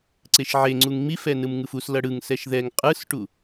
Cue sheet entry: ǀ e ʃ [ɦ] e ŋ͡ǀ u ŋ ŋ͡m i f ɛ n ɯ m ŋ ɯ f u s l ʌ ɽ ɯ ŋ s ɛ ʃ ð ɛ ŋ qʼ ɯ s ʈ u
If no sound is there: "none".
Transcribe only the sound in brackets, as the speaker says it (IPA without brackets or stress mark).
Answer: ʕ